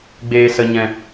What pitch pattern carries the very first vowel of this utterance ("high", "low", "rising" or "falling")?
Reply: low